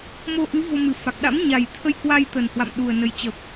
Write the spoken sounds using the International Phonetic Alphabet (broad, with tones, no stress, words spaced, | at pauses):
mo˧ʔɨ˨˦ vo˧mɨ˨˩fa˨˩k̚ ɗa̰˧˥mɲa˨˩jt̪ʰə˧jkwa˧j t̪ə˨˩nhwa̰˧˨m ɗu˨˩ə̯nə˨˩jt͡ɕə˨˩p̚